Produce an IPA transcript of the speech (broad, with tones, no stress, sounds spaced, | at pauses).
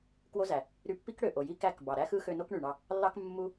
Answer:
k w o˦ z æ˨ | ɾ y˧ pː i˦ k ɽ ø˨ ʔ o˨ j i˦ k æ˦˨ k b ɑ˨ ɾ æ˦ x ɯ˦ x ø˧ n o˦ k ɳ y˨ ɳ ɑ˧ | lː ɑ˦ k mː u˦